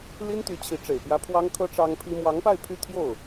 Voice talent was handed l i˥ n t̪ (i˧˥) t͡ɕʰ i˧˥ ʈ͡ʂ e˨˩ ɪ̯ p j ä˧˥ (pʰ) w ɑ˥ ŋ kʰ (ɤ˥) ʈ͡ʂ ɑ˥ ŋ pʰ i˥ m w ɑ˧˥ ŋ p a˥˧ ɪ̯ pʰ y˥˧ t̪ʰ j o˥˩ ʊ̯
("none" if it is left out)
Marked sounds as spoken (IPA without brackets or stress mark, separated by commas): y˧˥, pʰ, ɤ˥